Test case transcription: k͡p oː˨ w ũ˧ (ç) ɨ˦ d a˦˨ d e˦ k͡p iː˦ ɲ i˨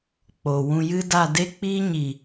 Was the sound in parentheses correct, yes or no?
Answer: no